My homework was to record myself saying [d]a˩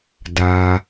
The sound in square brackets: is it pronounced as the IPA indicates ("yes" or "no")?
yes